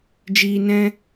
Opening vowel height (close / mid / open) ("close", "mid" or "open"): close